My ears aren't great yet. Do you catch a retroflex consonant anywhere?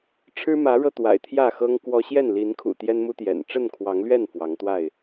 yes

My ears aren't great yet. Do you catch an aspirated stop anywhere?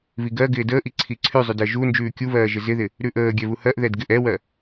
yes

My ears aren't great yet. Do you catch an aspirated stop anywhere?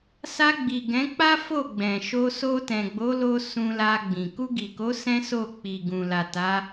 no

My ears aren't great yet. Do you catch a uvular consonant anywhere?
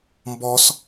no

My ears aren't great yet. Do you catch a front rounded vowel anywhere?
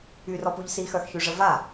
yes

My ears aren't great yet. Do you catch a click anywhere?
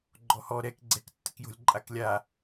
yes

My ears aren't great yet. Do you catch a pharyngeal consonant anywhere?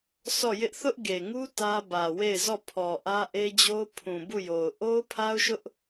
no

